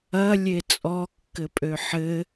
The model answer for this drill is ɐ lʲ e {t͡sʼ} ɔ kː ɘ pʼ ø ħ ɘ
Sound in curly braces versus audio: correct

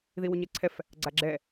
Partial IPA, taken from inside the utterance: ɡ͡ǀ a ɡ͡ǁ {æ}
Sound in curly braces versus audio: incorrect: ɛ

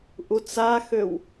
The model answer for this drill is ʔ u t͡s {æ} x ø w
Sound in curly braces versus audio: incorrect: a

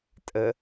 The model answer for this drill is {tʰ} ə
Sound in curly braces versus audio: incorrect: tʼ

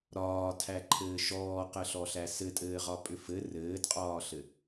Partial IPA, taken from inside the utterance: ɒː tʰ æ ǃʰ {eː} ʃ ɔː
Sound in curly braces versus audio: incorrect: ɘː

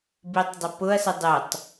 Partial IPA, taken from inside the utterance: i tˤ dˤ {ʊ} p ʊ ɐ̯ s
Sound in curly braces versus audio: correct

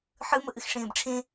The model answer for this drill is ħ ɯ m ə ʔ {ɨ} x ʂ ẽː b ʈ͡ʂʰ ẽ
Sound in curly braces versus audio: correct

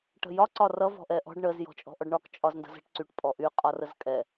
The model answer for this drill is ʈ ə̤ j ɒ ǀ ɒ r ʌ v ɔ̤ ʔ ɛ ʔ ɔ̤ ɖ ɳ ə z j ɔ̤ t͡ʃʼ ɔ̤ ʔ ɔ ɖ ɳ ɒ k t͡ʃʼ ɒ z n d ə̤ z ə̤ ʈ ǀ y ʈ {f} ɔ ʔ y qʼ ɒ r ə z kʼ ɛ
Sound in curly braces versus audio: incorrect: pʼ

